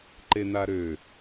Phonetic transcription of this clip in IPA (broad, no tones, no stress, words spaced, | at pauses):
ǃenaɾø